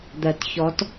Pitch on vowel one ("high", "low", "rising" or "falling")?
low